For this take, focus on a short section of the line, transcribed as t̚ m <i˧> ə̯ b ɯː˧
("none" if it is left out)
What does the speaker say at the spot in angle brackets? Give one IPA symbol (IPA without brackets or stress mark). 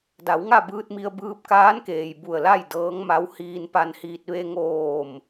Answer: i˧